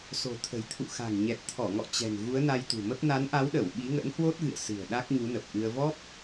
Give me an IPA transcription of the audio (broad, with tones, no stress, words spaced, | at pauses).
so̤˨˩t̪ʰə̤˨˩jt̪ʰṵ˧˨xa̤˨˩ŋ ɲɛ˨˩t̚t̪ʰɔ˧˩ŋɔ̰˧˨ t͡ɕɛ̤˨˩n ɣu˨˦ə̯na˧jt̪ṳ˨˩mə˦˥p̚ na˨˦nʔa˨˦wɗə˧˩w ɓi˨˦ŋə̰˧˥nhwo˦˥t̚ɣɨ̰˧˨ə̯ sɨ̤˨˩ə̯ ɗa˦˥k̚ɲu˨˦nə˨˩p̚ʔɨ˧ə̯ vɔ˦˥p̚